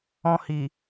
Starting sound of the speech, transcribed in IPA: ɔ̃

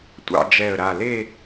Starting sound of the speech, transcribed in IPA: tʷ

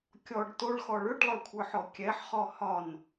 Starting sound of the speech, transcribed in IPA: kʲ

